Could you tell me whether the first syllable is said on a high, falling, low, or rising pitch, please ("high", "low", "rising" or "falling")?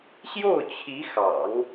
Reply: falling